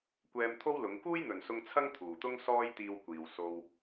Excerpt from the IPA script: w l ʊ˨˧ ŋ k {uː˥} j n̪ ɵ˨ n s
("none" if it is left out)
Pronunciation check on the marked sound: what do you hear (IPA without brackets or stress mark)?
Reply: uː˥